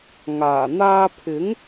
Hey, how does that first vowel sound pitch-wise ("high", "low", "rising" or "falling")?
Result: low